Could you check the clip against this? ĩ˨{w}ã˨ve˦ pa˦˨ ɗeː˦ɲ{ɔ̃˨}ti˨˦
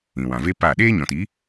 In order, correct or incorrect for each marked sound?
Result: correct, correct

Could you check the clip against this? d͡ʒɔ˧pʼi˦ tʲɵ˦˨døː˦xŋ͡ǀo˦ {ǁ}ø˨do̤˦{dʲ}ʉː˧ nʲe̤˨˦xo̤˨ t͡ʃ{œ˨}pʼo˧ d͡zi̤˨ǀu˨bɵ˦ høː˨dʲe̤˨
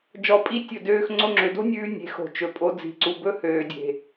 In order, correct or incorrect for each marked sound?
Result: incorrect, incorrect, incorrect

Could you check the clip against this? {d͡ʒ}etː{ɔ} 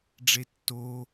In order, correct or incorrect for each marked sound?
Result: incorrect, incorrect

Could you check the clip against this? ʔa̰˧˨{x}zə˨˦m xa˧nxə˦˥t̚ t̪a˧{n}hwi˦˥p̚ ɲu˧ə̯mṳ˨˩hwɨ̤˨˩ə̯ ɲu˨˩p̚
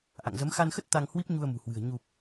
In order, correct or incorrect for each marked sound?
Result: incorrect, incorrect

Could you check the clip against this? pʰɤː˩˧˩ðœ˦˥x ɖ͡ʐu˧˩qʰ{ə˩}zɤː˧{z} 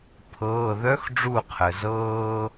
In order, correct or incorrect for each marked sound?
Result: correct, incorrect

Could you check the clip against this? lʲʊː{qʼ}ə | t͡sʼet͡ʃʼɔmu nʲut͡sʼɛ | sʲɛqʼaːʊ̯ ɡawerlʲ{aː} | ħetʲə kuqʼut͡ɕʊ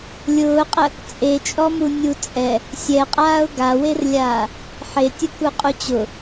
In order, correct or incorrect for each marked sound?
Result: correct, correct

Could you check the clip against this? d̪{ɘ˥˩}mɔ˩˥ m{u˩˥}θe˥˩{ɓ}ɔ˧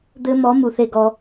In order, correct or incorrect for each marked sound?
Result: incorrect, incorrect, incorrect

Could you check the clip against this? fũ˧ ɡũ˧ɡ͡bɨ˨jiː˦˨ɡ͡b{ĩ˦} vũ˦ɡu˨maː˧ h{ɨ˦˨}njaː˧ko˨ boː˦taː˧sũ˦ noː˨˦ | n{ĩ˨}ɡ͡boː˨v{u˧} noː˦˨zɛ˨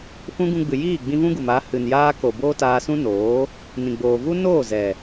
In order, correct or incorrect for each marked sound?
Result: incorrect, incorrect, correct, incorrect

